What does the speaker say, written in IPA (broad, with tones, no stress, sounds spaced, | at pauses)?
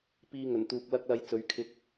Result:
p iː˧ ŋ ɵ˨˩ n t̪ uː˨ k̚ l ɐ˥ k̚ l ɐ˧ j t͡s ɵ˨˥ ɥ kʰ ɪ˨˥ k̚